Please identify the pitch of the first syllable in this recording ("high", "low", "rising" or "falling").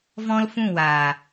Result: high